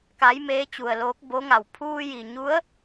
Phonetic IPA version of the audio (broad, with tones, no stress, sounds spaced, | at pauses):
k a˧˥ j m eː˧˥ t͡ɕ u˩ ə̯ l oː˧˥ k̚ b o˧˥ ŋ a˩ w pʰ uː˧ j i˩ ɲ u˧˥ ə̯